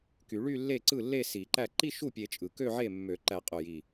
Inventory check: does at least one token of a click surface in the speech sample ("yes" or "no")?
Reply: yes